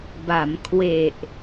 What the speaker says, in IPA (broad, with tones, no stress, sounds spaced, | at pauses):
b a˩˦ m kʰ w e˨˩ ʔ